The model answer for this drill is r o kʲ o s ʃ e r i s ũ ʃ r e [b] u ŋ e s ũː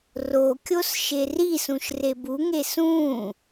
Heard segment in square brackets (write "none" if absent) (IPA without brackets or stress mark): b